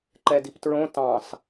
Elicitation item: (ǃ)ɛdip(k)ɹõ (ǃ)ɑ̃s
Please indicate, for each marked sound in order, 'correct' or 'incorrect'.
correct, incorrect: t, incorrect: t

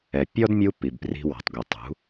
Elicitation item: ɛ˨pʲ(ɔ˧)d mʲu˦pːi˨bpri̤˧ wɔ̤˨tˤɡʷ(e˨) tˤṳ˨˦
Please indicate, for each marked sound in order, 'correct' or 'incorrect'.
incorrect: ɔ˦, correct

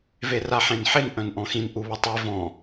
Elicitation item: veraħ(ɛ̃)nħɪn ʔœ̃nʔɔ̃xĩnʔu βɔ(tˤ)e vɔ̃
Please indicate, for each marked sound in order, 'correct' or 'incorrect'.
incorrect: ẽ, correct

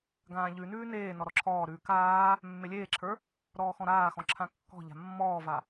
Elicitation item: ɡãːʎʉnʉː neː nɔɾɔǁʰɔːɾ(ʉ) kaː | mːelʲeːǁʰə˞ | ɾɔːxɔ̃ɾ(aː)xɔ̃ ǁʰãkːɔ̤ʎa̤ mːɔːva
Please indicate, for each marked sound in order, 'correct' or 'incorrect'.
incorrect: ʉː, correct

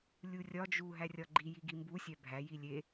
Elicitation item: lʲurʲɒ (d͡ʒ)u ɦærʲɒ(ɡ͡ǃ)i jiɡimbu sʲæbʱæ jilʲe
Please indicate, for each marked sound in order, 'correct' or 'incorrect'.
correct, correct

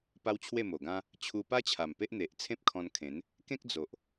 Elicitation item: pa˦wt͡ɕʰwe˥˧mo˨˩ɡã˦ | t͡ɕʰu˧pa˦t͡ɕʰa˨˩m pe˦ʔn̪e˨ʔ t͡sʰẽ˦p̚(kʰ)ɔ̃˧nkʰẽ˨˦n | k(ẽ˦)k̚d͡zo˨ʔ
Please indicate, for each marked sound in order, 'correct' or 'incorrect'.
correct, correct

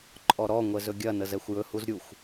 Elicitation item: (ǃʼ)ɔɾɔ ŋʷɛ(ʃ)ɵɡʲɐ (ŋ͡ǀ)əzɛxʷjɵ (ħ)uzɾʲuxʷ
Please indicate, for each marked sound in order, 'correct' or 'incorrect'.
correct, incorrect: z, incorrect: n, incorrect: h

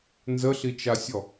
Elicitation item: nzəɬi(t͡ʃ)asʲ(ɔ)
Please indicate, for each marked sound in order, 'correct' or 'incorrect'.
correct, correct

